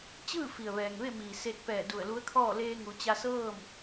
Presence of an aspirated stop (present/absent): present